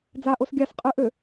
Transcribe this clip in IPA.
d͡z a ʔ o s ɡʲ a s qʼ ɨ ʔ ø

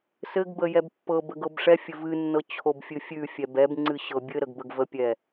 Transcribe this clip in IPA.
s ɘ ɡ b ə j ɛ b pː ɤ b ə ɡ ɤ b ʂ ɛ fʲ ɘ v ɨ nː ɤ t͡ɕʰ o b fʲ ɨ fʲ ʉ fʲ ɛ b ɛ b ŋ͡ǀ ɨ ɕ ɤ bʲ ɘ ɾ ə ɡ b ə ɡ v ə pʲ ɛ

